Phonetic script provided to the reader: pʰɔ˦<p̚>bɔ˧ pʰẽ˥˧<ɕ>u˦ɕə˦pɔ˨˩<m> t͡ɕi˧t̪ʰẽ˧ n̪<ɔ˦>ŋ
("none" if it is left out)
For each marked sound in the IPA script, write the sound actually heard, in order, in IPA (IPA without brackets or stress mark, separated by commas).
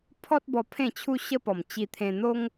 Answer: t̚, t͡ɕʰ, m, o˦